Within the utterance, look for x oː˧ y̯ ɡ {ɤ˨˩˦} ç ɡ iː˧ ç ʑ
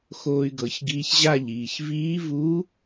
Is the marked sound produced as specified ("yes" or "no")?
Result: yes